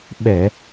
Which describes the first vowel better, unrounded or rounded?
unrounded